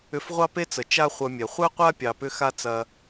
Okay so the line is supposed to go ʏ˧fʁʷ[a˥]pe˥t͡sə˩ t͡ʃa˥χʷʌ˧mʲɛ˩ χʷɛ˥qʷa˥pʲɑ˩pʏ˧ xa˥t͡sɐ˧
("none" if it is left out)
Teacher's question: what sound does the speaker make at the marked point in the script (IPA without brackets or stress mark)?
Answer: ɑ˥